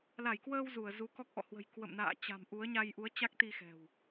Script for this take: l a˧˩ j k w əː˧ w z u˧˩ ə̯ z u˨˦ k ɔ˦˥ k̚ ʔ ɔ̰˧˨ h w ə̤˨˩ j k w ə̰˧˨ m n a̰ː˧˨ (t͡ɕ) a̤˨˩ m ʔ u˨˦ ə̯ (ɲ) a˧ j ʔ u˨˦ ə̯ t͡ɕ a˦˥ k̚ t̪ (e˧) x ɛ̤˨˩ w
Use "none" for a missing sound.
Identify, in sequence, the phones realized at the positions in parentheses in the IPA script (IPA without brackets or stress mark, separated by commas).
t͡ɕ, ɲ, i˧